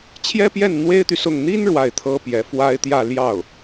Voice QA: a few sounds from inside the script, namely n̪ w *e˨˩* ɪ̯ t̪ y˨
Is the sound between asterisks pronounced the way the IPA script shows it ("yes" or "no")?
no